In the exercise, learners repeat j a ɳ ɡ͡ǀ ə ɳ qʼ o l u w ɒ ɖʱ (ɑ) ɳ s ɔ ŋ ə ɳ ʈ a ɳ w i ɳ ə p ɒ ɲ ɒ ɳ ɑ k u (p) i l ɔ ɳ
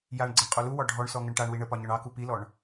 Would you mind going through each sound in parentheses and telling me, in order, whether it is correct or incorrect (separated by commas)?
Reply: incorrect, correct